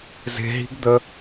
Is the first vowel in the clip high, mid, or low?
mid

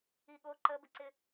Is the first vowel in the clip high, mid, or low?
high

